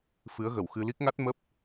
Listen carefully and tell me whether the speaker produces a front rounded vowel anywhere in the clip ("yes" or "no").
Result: no